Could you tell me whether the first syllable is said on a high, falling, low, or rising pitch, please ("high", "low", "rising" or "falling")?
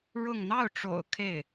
falling